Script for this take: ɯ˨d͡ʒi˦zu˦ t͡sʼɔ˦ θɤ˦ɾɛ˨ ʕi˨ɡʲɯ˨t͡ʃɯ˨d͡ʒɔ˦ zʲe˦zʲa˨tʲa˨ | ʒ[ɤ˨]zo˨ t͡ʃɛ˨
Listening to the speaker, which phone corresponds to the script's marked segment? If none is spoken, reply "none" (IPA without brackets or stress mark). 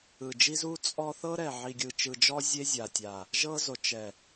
ɤ˦